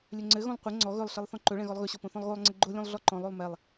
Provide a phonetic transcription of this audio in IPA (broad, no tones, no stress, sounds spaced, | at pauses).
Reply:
lʲ ɵ ŋ͡ǀ ɘ ɣ õ lˠ qʷ ɘ ŋ͡ǀ ɔ ɣ ɵ lˠ ɬ ɘ lˠ θ ɔ̃ ǃ ɵ ɭ ɛ̃ ɣ ɔ lˠ ɣ ɵ ɕ ɔ p õ θ ɔ̃ lˠ ɣ o lˠ ŋ͡ǀ ɘ ɡ͡ǃ o lʲ õ lˠ ɮ ɔ ǃ ɔ̃ lˠ o lˠ m ɛ lˠ